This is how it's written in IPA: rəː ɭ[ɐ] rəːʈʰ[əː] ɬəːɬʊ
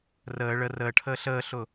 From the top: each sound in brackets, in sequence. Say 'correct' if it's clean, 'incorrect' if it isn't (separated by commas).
incorrect, correct